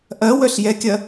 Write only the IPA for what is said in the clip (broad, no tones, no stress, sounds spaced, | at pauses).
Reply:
ʔ ɐ w œ ɬ j ɛ kʲ ɐ